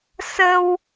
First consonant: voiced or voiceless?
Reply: voiceless